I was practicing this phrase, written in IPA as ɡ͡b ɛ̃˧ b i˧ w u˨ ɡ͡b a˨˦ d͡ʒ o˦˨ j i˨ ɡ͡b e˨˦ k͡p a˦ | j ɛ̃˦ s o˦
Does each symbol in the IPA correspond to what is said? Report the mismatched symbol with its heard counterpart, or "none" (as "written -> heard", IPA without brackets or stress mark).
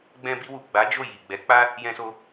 e˨˦ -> ɛ˨˦